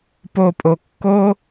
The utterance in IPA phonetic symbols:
p o˧ pʼ o˧ kː o˦

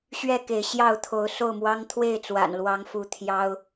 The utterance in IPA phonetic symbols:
ɕ ɥ ɛ˥˨ k e˨˦ ɪ̯ ɕ j ɑ˥˨ ʊ̯ t̪ʰ o˨˦ ʊ̯ s o˥˨ ʊ̯ m w ɑ˦ ŋ t̪ʰ w e˥˨ ɪ̯ t͡s w a̰˨˩ n l w ɑ˨˦ ŋ f u˨˦ t̪ʰ j ɑ˦ ʊ̯

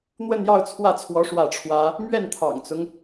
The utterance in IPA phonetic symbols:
n̪ w ə˥˧ n j ɑ˥˧ ʊ̯ t͡sʰ w ä˥˩ t͡sʰ w ɔ˧˥ ʂ w ä˥˩ ʈ͡ʂʰ w ä˥ | m ɥ ɛ˥˩ n t̪ʰ ɑ̰˨˩ ŋ t͡s ʊ˦ ŋ

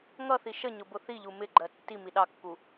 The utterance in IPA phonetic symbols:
ŋ ʌ θ i ʃ ə ɲ ʊ b ʊ θ i ʎ u m ɪ ɡ͡ǃ ɜ tː i m i ɗ ɑ kː u

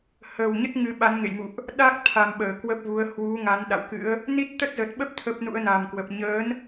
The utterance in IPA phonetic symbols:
h əː˨˩ w ɲ ə˦˥ t̚ ŋ ɨ˧ ɓ a˨˦ n ŋ ḛ˧˨ j m ṵ˧˨ ʔ | ɗ a˦˥ k̚ t̪ʰ a˨˩ m ɓ əː˧˩ k w ə˦˥ p̚ v u˨˦ ə̯ h w u˨˦ ŋ a˨˦ n ɗ a̰˧˨ w k ɨ̰˧˥ ə̯ | n i˦˥ t̚ t̪ ə˦˥ t̚ z ə˨˩ t̚ ɓ ə˦˥ p̚ t̪ʰ ə˦˥ p̚ n ṵ˧˥ ə̯ n a˨˩ m k w ə˨˩ p̚ ɲ əː˨˦ n

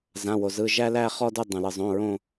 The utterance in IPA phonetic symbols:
z ã˩˧˩ w o˩ z ɯ˩˧˩ ʒ æ˦ l æ˦˨ χ ɔ˦ d ʊ˦˨ dˤ õ˩ l ɯ˩ zˤ õ˩˧˩ ɹ õ˦˨

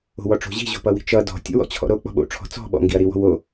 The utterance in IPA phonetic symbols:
o̤ w ɔ ʈ͡ʂ o̤ ʑ i̤ ʑ o̤ p ʌ w i̤ t͡ʃ ʌ d ɔ̤ tʲ o̰ w ɔ̰ t͡ɕʰ ɔ̰ ɾ o k͡p ɔ̤ ɓ o̰ ʈ͡ʂʰ ɔ̤ t͡s ɔ̤ ɓ ɔ̰ ŋ ɡ i ɐ̯ ɾ i w ɔ̤ w o

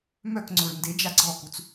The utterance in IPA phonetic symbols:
m œ k ŋ͡ǀ ʊ ɹ n d e d͡ʒ a ɡ͡ǀ ɔ k u t͡s

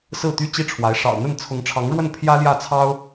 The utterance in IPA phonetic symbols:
s ɹ̩˥˩ t̪ y˥ t͡ɕ i˥ ʈ͡ʂʰ w a˧˥ ɪ̯ ʂ ɑ̰˨˩ ʊ̯ n̪ ə˥˩ n t͡sʰ ʊ˧˥ ŋ ʈ͡ʂʰ ɑ˧˥ ŋ ɻ w ə˥˩ n pʰ j ä˥ l j ä˥˩ t͡sʰ ɑ˥ ʊ̯

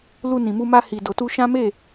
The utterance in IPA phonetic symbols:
l u˧ n ĩ˨ m u˧ m a˧ h i˨ d o˨ t u˧ ʃ ã˦ m e˦˨

